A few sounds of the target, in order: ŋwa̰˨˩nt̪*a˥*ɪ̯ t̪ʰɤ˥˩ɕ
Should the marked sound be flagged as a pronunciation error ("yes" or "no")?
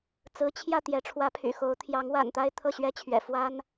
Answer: no